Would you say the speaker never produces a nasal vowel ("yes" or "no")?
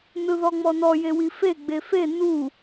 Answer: yes